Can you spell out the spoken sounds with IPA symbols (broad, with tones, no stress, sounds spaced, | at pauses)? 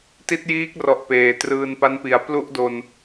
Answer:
t i˦˥ t̚ j iː˦˥ k̚ r ɔ˨˩ ʔ p eː˨˩ t r ɯː˧ n p a˦˥ n p i˨˩ a̯ p l u˥˩ ʔ d o˧ n